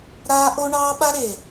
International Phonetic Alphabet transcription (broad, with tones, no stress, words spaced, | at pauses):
ɾaː˦ ʔo˦ ɳɑː˦ɓa˦ɾe˨